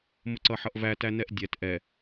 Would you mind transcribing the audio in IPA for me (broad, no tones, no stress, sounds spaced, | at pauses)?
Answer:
m ʊ ǀ ʌ ħ ʌ ʔ v æ t æ n ɛ ʔ dʲ ɛ t ʔ ɛ